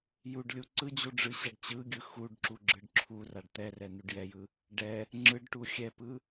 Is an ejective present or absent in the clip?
absent